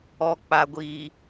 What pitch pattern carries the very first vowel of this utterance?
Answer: low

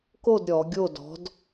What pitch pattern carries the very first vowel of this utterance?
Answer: falling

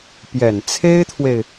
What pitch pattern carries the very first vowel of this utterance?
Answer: low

